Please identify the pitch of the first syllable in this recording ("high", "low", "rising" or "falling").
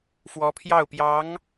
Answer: rising